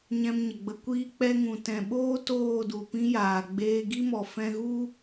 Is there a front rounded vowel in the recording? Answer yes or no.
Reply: no